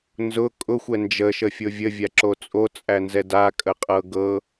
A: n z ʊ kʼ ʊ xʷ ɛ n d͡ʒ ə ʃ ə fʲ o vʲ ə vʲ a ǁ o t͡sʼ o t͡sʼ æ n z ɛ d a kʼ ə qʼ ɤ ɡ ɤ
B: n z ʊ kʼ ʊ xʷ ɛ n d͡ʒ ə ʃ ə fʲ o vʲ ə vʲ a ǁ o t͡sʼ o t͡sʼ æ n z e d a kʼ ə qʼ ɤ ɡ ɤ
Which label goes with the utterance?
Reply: A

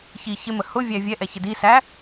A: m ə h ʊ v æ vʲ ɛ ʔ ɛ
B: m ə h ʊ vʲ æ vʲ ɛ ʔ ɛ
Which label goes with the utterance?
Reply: B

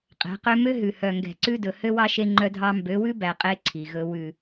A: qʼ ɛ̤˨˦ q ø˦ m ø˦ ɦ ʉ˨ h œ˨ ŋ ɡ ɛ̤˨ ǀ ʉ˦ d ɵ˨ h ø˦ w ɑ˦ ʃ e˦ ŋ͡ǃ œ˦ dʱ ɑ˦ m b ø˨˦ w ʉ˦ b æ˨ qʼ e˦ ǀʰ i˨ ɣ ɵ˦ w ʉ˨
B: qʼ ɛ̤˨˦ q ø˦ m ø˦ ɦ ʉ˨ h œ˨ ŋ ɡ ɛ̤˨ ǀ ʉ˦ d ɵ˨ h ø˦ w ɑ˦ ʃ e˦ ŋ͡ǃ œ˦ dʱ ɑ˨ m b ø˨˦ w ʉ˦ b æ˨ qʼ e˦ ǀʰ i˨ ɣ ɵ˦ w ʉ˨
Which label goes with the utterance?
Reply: A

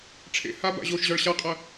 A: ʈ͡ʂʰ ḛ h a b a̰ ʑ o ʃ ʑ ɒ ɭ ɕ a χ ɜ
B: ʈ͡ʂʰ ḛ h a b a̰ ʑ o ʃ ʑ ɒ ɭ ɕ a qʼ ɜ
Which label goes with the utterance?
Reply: B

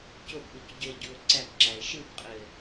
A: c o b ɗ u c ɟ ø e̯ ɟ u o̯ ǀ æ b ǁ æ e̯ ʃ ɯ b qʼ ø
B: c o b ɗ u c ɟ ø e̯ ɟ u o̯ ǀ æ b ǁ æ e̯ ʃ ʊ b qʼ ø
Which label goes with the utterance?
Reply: A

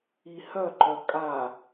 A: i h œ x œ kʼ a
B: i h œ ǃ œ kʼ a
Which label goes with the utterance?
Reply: B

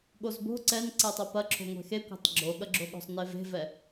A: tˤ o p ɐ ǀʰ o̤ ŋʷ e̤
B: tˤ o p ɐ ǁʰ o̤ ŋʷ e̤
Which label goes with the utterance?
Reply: B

